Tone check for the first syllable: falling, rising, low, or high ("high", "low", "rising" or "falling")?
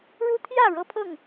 high